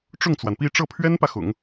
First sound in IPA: ʈ͡ʂ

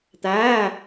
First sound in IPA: t̪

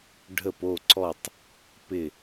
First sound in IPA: ɖʱ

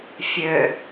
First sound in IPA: fʲ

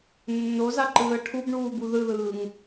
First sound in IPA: nː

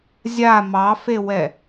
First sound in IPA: zʲ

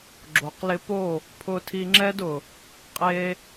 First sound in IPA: ɡ͡ǁ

